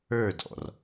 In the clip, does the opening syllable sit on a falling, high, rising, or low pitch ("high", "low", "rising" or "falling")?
falling